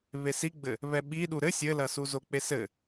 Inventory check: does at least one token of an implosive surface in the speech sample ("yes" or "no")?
yes